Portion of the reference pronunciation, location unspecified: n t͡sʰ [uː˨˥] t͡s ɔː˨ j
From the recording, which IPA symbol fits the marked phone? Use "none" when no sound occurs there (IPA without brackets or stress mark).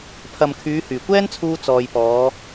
uː˧